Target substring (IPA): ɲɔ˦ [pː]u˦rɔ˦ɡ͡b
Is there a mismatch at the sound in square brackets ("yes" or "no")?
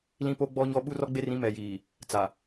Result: yes